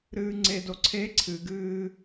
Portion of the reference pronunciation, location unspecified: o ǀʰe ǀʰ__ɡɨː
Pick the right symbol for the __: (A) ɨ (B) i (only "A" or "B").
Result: A